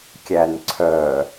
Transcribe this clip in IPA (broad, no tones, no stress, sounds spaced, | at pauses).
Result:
kʲ æ n ǀʰ œ